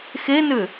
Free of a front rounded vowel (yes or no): no